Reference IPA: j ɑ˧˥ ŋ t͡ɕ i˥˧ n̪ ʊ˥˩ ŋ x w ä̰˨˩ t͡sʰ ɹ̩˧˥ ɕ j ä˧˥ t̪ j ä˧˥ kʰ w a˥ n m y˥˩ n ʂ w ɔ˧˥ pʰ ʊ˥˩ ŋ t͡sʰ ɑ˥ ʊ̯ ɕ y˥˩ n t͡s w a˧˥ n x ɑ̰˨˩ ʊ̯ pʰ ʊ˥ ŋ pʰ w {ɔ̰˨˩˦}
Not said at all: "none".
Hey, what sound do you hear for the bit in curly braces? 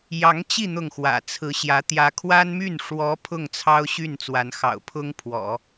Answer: ɔ̰˨˩˦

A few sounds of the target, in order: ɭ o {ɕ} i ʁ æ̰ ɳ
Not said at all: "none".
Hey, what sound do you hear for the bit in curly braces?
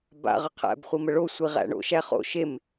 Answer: sʷ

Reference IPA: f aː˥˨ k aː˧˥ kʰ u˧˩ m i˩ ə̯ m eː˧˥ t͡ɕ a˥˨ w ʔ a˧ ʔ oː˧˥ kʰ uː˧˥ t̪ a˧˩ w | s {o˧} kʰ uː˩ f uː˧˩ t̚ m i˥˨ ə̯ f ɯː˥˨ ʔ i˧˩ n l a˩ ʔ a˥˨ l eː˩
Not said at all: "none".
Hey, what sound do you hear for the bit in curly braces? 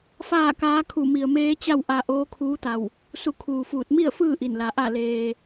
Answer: u˧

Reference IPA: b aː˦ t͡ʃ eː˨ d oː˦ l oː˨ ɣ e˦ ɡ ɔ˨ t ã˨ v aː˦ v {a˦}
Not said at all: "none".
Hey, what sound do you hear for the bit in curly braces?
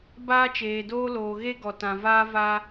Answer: a˦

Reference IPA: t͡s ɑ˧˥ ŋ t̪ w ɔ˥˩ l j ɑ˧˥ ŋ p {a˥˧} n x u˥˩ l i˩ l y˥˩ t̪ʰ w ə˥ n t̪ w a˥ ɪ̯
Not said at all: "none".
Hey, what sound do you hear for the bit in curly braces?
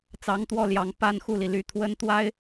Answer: a˥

